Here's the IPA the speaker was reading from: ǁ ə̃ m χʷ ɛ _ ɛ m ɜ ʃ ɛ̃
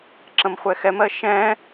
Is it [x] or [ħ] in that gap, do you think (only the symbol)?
x